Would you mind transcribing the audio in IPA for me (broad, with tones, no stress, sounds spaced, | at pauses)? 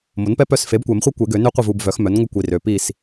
m o˩˥ n p ɛ˦ p œ˦˨ s f e˩˥ b kʷ ɛ˨˩˦ m χʷ œ˦ kʷ e˨˩˦ ɡ ø˨˩˦ n ø˦ qʷ ə˦˨ v u˨ b v œ˩˥ x m œ˩˥ n ŋʷ ə˦ kʷ i˨ r ø˨ p i˦˨ s